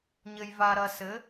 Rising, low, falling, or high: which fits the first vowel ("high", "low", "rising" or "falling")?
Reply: low